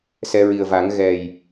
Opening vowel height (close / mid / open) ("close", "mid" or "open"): mid